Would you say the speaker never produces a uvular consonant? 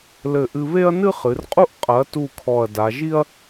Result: no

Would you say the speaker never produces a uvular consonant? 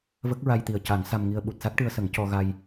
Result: yes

